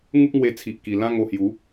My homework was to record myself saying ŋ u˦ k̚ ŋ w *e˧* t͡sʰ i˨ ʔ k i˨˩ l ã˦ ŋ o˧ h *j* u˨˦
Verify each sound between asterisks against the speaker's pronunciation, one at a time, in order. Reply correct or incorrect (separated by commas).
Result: correct, correct